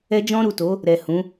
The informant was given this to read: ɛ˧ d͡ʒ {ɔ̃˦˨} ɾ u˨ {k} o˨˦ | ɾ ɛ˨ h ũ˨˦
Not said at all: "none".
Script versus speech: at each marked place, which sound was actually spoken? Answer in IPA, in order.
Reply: ɔ̃˧, t

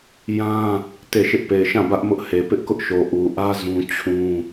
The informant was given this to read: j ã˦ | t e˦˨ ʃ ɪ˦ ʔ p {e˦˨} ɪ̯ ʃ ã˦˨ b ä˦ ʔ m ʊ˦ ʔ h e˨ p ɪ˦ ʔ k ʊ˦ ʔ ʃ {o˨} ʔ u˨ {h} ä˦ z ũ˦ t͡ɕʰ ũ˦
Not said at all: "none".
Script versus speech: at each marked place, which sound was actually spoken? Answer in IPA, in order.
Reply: e˨, o˨, ʔ

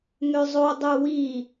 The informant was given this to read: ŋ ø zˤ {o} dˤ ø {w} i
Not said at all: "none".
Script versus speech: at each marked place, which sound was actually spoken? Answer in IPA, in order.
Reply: o, w

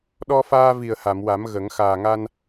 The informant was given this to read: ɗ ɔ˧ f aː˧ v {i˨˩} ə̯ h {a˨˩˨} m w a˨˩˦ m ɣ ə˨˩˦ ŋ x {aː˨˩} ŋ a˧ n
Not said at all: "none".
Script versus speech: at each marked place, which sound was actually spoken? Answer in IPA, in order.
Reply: i˨˩, a˨˩˨, aː˨˩

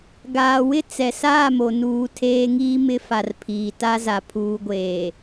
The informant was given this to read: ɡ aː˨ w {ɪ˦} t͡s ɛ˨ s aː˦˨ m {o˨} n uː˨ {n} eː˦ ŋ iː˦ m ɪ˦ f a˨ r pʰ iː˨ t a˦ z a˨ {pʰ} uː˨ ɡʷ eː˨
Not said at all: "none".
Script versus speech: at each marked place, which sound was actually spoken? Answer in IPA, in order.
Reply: ɪ˦, o˨, tʰ, pʰ

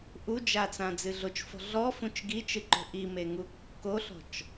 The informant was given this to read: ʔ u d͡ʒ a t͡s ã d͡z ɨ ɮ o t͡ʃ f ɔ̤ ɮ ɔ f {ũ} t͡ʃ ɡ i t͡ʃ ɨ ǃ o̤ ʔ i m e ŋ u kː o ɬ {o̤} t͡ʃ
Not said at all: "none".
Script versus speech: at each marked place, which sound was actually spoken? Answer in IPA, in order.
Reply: ũ, ɔ̤

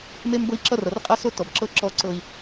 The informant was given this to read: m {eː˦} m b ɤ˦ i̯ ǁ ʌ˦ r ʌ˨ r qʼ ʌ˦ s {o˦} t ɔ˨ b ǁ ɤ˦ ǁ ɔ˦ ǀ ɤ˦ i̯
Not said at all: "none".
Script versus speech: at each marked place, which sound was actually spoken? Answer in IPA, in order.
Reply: e˦, o˦

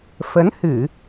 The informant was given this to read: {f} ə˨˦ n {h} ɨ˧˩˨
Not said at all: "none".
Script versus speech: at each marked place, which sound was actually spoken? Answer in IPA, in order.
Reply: f, h

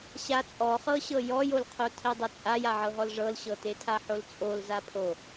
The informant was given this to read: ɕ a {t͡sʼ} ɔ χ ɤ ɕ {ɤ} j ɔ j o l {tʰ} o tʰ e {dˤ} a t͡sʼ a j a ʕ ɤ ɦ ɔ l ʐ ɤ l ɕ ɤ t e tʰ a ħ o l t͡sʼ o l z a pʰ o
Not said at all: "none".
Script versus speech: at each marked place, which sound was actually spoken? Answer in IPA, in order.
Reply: t͡sʼ, ɤ, qʰ, dˤ

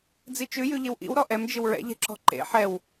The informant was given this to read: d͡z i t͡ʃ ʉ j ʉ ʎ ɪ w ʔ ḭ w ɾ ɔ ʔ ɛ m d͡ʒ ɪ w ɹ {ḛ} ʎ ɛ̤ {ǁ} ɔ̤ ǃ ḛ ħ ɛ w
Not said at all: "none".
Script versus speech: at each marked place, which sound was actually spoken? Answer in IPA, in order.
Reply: ɛ̰, ǁ

